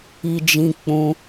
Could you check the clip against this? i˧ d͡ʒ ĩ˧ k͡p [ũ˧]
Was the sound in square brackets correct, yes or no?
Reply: yes